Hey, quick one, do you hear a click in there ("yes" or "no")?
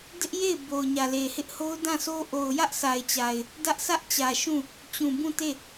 no